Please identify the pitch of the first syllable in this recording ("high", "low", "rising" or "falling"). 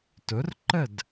rising